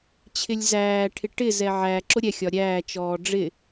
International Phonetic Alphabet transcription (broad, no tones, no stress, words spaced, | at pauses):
t͡ɕʰɪlʲzæːʈʰɪ ʈɪzɛ ʕæ ǁʊɾʲɛxʲɒ ɾʲæːt͡ʃɔː ɖ͡ʐɪ